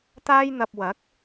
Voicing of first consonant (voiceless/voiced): voiceless